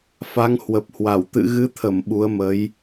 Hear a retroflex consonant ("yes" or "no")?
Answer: no